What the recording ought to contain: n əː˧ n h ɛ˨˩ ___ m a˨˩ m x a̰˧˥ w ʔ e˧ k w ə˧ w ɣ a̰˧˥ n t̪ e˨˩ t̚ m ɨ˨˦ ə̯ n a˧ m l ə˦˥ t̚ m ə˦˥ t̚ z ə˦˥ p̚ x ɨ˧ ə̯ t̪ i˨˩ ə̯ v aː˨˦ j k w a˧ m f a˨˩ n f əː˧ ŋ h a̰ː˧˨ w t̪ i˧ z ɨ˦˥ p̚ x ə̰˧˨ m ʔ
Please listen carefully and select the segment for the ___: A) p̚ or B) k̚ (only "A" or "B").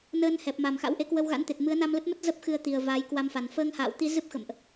A